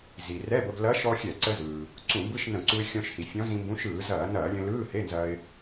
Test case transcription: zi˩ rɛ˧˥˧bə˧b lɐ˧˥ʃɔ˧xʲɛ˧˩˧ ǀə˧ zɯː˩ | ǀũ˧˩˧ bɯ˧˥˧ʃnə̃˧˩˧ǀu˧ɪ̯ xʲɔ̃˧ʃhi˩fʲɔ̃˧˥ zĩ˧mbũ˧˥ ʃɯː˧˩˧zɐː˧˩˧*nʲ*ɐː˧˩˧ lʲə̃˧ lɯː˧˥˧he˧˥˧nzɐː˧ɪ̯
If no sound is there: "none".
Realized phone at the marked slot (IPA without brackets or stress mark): n